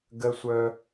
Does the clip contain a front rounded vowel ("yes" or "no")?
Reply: yes